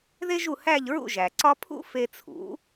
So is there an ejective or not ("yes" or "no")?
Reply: no